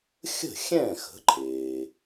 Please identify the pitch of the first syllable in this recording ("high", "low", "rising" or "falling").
falling